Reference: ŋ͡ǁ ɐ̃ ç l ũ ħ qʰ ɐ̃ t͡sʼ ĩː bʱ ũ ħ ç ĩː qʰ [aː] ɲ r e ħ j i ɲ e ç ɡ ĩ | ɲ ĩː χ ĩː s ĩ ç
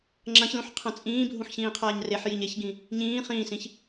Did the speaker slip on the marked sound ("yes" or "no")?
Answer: no